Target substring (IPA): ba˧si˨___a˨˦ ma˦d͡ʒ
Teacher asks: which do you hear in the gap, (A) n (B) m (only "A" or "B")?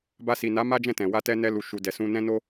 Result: A